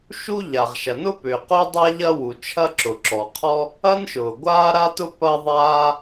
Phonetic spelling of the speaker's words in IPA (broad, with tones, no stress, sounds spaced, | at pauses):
ʃ u˥ ʎ a˩ ʁ ʃ ɐ˩ n ʊ˥ p ʏː˩ q ʊː˥ dˤ a˥ ʎ ɐ˥ w u˩ t͡ʃʰ ɐ˥ ǁ ʊ˩ ǁ ɔ˩ qʰ ɔ˥ | ɐ˥ n ʃ ʊː˩ ɡʷ aː˥ ɾ a˥ t ʊ˥ p ɐ˥ ðˤ aː˥